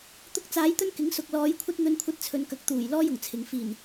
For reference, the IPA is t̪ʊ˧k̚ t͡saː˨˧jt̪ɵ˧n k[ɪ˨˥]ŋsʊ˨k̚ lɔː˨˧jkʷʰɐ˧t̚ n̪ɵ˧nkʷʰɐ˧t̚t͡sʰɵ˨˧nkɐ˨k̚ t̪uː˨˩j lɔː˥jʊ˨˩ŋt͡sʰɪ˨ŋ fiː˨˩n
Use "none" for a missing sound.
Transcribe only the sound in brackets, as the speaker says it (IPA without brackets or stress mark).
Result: ɪ˨˥